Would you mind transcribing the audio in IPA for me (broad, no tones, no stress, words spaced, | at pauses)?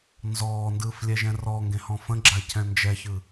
nzɔːndɯːflʲɛʒɛ̃ rɔŋɡẽhɔ̃ fə̃ɡ͡ǁacʰɛ̃ nd͡ʒɛçɯ